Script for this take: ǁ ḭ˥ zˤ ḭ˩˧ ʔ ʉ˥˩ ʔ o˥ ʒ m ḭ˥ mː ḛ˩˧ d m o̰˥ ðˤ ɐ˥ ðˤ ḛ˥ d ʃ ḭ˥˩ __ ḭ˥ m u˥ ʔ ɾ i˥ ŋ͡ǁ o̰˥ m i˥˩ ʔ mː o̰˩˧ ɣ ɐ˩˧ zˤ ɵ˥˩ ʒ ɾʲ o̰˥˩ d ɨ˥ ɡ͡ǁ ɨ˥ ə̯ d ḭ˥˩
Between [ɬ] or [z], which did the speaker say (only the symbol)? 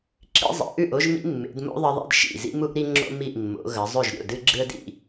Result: z